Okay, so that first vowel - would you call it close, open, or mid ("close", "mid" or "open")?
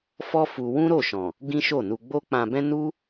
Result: mid